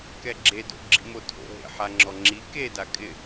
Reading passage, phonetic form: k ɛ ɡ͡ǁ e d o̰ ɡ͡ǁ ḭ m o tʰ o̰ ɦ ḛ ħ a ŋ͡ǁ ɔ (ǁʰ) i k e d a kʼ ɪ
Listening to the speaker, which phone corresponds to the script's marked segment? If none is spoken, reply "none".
ŋ͡ǁ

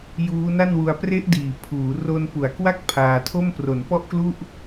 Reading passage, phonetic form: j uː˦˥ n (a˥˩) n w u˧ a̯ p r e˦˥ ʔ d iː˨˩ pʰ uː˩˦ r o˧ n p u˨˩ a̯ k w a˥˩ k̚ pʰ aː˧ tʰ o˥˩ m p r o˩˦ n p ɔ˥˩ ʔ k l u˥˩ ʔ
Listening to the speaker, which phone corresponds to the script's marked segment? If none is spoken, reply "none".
a˥˩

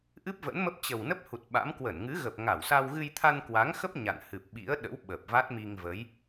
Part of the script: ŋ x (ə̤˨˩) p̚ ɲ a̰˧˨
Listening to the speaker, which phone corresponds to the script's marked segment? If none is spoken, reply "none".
ə˦˥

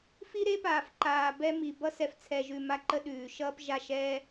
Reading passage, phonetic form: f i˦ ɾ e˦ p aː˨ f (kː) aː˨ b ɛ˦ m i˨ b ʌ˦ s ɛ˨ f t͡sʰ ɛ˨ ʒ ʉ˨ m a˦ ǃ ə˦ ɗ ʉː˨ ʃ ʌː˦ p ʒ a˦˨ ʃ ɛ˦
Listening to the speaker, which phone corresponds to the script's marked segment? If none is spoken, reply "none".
ǃ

